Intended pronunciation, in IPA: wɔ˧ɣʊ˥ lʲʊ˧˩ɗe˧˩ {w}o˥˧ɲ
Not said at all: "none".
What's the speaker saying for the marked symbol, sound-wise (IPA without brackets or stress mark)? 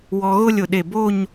b